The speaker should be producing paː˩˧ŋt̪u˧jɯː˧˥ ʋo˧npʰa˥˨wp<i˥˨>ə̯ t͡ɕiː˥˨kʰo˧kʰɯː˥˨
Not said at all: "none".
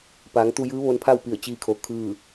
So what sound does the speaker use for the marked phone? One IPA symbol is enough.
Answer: i˧˩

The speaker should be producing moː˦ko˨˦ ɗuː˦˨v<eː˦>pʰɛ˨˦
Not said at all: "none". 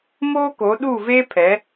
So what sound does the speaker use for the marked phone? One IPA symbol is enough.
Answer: eː˦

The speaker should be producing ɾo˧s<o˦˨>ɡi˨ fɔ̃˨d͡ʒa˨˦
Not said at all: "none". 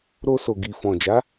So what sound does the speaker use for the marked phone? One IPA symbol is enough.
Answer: o˨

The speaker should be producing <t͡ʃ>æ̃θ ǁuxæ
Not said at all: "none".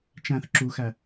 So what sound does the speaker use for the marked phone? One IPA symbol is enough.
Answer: t͡ʃ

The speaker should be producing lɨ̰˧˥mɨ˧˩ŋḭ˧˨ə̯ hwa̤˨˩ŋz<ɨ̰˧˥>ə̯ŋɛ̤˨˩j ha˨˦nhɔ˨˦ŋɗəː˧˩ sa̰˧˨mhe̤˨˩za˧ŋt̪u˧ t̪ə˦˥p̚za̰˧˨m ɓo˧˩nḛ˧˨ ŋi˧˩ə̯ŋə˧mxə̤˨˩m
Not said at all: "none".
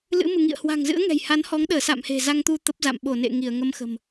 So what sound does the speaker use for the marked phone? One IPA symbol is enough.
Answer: ɨ̰˧˥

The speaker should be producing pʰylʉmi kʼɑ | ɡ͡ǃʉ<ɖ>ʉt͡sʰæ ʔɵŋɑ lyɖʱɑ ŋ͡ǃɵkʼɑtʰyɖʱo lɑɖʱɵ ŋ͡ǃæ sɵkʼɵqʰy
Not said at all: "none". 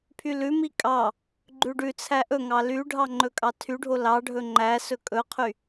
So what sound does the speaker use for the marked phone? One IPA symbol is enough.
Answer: ɖ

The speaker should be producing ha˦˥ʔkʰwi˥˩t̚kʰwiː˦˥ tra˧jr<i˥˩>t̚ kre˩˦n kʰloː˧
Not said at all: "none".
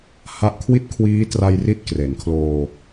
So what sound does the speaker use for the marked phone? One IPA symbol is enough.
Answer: i˦˥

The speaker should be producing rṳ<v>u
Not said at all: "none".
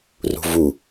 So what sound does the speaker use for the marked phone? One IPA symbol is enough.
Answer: v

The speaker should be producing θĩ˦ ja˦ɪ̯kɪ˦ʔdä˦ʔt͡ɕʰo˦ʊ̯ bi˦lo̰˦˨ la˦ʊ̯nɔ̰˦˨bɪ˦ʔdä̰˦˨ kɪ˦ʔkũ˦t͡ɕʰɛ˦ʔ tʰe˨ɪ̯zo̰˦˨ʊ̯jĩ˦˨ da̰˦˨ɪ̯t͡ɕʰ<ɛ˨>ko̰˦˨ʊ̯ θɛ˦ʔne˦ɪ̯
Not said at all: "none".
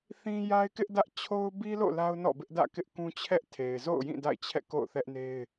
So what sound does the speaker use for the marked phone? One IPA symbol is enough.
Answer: ɛ̰˦˨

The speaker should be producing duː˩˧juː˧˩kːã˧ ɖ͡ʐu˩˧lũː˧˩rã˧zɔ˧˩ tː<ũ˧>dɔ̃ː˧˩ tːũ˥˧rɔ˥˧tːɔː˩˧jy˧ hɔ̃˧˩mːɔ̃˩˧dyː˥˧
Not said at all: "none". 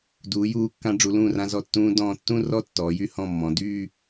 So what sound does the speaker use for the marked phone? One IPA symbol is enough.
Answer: ũː˧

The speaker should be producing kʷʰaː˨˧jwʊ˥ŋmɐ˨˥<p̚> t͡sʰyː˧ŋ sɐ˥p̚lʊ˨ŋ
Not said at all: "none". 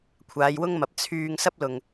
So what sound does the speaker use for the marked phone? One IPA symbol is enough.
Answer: p̚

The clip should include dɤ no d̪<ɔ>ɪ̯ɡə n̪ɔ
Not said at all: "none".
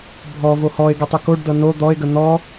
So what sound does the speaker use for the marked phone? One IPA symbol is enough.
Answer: ɔ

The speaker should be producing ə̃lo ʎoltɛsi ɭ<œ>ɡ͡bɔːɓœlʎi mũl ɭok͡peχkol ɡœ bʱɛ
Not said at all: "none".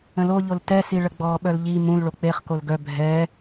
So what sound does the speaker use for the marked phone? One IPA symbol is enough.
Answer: ə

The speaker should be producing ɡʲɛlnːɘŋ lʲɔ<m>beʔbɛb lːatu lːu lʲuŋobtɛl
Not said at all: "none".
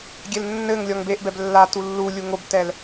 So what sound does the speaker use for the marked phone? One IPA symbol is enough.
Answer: ŋ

